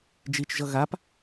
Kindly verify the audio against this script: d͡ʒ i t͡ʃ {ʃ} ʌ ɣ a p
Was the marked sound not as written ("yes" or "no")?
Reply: yes